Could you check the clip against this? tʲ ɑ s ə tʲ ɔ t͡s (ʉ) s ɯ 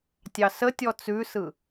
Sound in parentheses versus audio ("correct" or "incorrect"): correct